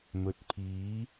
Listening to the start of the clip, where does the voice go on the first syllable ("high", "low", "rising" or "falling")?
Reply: low